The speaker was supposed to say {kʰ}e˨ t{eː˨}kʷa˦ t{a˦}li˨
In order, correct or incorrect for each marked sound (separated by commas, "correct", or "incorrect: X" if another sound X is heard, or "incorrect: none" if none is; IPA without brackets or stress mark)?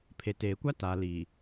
incorrect: pʰ, correct, incorrect: a˨